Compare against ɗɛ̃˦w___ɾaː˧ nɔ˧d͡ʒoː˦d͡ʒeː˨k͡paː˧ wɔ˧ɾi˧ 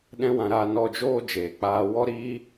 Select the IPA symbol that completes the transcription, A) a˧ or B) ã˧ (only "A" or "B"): B